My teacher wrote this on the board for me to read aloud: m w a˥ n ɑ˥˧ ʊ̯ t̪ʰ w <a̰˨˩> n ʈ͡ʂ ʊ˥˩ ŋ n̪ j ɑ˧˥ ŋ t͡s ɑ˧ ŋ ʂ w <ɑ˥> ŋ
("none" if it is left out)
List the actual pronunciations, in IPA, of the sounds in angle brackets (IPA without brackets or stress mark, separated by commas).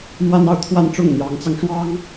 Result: a˥˧, ɑ˥